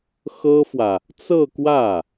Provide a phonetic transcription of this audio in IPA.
x ɤ˥ f w ä˨ | t͡s ɤ˥˧ k w ä˥˩

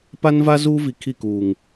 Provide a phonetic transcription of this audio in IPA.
p a˦ n v a˦ z uː˦ v i˨ kʰ i˦˨ k uː˨ ŋ

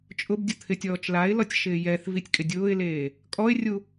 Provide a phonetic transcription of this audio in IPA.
t͡ʃʼ ʊ b dʲ ʊ t̪ʰ ɪ tʲ ɔː t͡ʃ l a ɪ̯ l ɔ tʲ ʃ ɪː j ɛ θ v i tʲ kʼ ɪ dʲ ʊː ɪ̯ l eː | kʼ ɔ ɪ̯ rʲ u

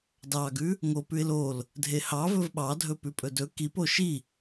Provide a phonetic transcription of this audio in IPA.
d ɑ ɡ ʉ | ŋ o p ʉ ɪ̯ l o l | dʱ e h ɑ v ɵ v ɓ ɑ dʱ ɵ p ʉ pʼ ɵ d ɵ k i p o ʃ i

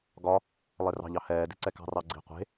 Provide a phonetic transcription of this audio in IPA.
ɡ ɒ | lˠ e r ɑ̤ ʎ ɑ h ɛː d i̤ ǀ ɛ k ɑ̤ r ɑ ɡ͡ǀ i̤ qʷ e̤

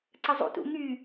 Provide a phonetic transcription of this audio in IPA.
ǀ ə zˤ ṵ t ṵ ŋ y

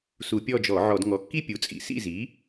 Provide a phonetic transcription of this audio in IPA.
s u˧˩˧ pʲ ɔ˦˨ d͡ʒ ɔ˧˩˧ ʕ ɔ˧˩˧ d ŋ ɔ˩˥ kː i˦˨ pʲ u˩˥ t͡sʼ ḭ˩˥ s ḭ˦˨ z i˩˥

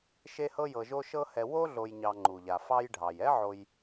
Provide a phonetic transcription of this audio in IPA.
ʃ e˥ h ɤ˥ j ɤ˨ ʒ o˦ ʃ ɤ˦ h ɛ˨ w o˥ ɮ o˨ j ɲ ɑ˨ ŋ͡ǃ u˩ ʎ a˩ f ɑ˦ j ɖʱ ɑ˩ j ɛ˥ ʕ o˨ j

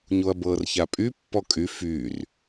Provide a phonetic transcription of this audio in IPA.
ɲ o ɐ̯ b ɤː r ç a pʼ y pː ɔ kʼ y f y r

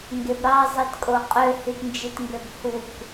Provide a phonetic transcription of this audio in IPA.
ŋ ɡ e b ɾ ɑ zˤ i t kʼ o qʼ ø h y t n d͡ʒ i t ŋ ɡ ø b h u k

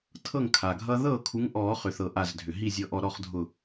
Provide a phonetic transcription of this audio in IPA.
tʰ ɤ˥˩ ŋ kʰ a˩ ɡʱ ʌː˦ ð ɤː˥˩ kʰ u˨˦ ŋ ʔ ɔː˨˩˦ χ ʏ˩ θ ɤ˩ ʔ a˧˩ z dʱ ʏ˩ ɦ i˥˩ zʲ ɤ˧˩ ʔ ɔ˧˩ ɾ ɔ˥˩ χ dʱ ʊ˧˩

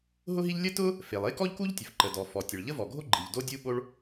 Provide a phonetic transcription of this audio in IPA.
ɦ ʊ˥ ɦ i˥ ʎ lʲ ə˥ t ʊ˥ | f e˩ lˠ e˥ k ɔ˥ ʎ k u˥ ʎ tʲ ə˩ f ǃ ə˩ d ɔ˩ f ɔ˩ tʲ ə˩ ɭ ʎ ə˥ v ɔ˩ ɡʱ o˥ ɡ͡ǃ i˩ ʎ d o˥ dʲ u˥ ɓ o˥ ɭ

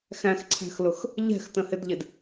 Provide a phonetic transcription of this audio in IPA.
x æ̃ x ǀʰ æ̤ x l ʊ x | ʎ ɛ̤ x t ə̃ h ɪ d ʎ ɪ d

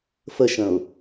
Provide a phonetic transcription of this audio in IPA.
f ə ʃ ə̃ ʊ̯

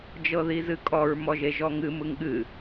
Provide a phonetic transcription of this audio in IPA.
d͡ʒ ɤ ð i z ɨ kʼ ɔ ɹ m ɔ ʒ e ʒ ɔ ŋ ɨ m ɯ ŋ ɠ ɨ

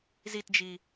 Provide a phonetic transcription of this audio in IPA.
z i t d͡ʒ i

